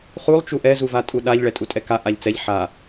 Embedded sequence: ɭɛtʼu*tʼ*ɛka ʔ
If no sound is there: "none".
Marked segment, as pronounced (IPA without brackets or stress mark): tʼ